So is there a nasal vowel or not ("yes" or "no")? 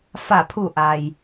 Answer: no